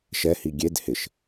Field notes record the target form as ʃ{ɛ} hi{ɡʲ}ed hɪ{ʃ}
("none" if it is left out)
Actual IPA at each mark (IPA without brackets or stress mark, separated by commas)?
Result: ɛ, ɡʲ, ʃ